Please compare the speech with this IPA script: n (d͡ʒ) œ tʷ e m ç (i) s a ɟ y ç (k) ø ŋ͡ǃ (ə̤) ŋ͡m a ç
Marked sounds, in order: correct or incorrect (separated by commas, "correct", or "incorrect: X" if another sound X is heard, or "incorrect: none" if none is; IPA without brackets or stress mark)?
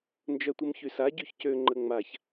correct, incorrect: y, incorrect: c, incorrect: ə